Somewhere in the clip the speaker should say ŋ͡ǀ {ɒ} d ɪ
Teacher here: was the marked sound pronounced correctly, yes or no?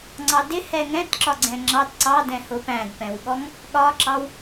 no